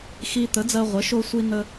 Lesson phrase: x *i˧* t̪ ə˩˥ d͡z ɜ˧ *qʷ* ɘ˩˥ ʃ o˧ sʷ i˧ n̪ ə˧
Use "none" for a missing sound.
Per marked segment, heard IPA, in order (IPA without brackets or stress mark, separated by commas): i˧, ʁʷ